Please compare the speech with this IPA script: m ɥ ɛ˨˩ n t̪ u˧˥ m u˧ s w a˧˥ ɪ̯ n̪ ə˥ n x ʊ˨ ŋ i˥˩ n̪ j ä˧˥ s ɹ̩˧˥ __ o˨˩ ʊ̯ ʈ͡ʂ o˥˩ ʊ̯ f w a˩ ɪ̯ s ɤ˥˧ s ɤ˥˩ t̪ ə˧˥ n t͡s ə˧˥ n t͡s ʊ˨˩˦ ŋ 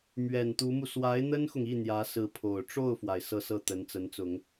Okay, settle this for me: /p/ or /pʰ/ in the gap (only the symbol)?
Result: pʰ